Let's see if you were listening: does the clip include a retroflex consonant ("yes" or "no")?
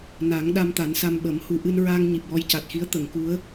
no